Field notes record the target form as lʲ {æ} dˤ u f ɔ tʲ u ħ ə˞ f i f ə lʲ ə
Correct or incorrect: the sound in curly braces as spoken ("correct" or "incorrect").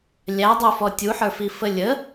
correct